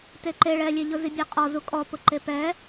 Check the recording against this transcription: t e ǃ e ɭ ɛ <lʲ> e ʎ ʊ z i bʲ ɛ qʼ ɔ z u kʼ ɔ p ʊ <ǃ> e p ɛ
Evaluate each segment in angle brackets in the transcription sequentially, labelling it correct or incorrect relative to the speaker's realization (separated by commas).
correct, correct